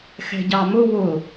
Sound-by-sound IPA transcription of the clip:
xɛ̤ɟɑmʊ wʊ

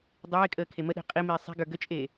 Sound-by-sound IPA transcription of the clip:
dˤeːkʼəː kʰeməɗe̤ qʼimiː sˤe̤ɡə˞ ɡət͡ʃʼeː

